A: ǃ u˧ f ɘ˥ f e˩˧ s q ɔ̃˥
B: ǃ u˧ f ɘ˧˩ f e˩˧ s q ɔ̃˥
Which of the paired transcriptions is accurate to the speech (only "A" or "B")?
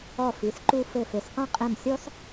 B